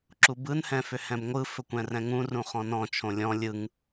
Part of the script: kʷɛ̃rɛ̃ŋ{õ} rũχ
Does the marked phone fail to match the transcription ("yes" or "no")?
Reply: yes